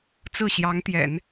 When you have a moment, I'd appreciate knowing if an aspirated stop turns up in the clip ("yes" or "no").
no